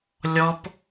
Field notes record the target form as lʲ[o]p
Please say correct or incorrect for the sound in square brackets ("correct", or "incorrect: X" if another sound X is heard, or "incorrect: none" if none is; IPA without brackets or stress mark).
incorrect: ɔ